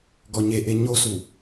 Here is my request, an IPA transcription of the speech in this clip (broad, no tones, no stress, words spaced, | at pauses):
ɡɔɲeʔe ɲosu